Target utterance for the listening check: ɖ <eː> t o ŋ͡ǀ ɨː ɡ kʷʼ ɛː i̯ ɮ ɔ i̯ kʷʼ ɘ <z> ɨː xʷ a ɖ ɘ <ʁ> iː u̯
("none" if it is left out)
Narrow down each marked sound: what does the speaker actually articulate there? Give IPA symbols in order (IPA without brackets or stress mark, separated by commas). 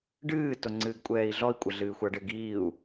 ɨː, ɮ, ɡ